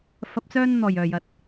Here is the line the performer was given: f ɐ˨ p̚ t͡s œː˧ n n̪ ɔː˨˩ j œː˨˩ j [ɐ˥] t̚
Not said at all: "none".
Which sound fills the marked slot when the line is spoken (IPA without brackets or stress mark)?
ɐ˨